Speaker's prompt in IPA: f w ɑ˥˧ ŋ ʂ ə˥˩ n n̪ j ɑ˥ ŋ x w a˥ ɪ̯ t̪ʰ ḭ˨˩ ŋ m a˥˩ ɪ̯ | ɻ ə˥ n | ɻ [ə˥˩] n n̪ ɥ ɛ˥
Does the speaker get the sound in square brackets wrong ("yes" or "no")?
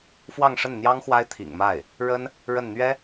no